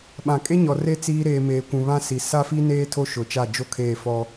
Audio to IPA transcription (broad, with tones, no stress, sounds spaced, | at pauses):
ɓ ã˨ kʼ e˦ ɲ ɔ˨ r e˦ t͡s iː˦ ɾ eː˨ m eː˨ kʷ ũ˨ β ã˦ s i˨ s a˦ f i˦ n eː˦ tʰ o˦ ʃ ʊ˨ t͡ʃ a˦˨ d͡ʒ o˦ kʰ eː˦˨ f ɔ˦